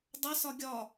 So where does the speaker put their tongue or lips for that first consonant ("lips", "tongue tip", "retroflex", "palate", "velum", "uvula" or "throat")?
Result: tongue tip